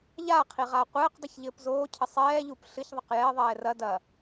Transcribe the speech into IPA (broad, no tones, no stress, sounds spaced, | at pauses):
ʎ a qʰ i ʁ aː qʷ ɘː q dˤ ɐ ç ʎ ɘː p z oː cʰ ɘ sˤ ɛː ʎ uː p ɬ ɨ ç ðˤ ɐ q j ɛ ðˤ ɛː r ɐ d ɐ